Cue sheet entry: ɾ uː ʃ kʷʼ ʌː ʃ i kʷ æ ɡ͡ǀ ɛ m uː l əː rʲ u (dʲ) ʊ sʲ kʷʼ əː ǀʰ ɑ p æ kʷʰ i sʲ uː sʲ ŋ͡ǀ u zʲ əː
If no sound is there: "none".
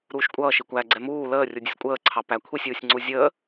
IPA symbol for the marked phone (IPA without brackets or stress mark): dʲ